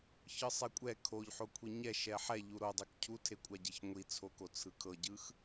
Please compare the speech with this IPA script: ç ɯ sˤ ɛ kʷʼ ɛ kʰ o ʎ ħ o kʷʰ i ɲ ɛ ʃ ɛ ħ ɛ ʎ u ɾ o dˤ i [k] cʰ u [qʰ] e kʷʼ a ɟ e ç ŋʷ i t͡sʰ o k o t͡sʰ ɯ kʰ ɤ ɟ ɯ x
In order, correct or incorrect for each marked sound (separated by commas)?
correct, incorrect